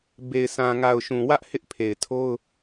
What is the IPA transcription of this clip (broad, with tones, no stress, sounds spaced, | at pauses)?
b e˨ ɪ̯ sʰ ã˨ ŋ a˨ ʊ̯ ʃ ũ˨ w ä˦ ʔ h ɪ˦ ʔ pʰ e˨ ɪ̯ tʰ o˦ ʊ̯